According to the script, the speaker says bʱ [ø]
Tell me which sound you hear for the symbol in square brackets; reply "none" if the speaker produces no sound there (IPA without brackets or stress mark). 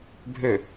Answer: ø